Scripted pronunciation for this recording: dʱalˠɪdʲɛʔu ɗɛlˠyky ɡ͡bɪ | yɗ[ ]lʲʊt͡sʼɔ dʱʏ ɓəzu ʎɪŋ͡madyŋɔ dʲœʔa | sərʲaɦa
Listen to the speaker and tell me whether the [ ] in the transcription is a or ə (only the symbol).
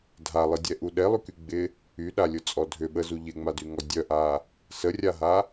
a